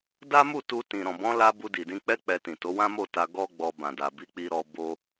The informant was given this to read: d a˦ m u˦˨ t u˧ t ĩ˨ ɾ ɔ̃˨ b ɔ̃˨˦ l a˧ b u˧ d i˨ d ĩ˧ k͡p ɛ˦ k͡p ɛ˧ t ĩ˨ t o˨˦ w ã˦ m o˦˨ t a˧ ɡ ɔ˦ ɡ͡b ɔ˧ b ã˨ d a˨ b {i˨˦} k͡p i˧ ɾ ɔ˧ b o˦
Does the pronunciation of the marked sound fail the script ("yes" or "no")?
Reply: no